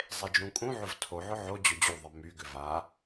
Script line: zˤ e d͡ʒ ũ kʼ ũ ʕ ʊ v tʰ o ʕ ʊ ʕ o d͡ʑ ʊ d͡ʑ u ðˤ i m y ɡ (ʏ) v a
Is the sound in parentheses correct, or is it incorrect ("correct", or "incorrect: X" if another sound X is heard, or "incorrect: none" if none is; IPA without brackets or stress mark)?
correct